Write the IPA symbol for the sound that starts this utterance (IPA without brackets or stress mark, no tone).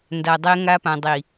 n